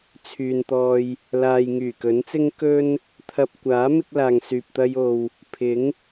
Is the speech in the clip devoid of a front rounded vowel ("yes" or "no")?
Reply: no